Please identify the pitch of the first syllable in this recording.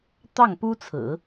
falling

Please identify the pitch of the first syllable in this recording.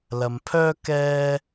low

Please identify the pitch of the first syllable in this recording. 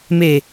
low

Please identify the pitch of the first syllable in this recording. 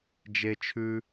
high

